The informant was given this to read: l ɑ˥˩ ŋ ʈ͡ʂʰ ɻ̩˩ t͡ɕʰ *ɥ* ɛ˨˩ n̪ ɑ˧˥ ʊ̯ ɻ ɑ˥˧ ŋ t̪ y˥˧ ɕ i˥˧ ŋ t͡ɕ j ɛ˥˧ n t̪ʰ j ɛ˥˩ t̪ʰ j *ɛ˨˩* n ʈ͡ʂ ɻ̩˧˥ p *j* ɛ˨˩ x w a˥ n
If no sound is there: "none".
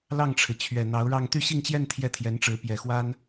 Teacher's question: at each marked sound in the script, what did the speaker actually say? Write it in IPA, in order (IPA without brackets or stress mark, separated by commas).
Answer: ɥ, ɛ˧˥, j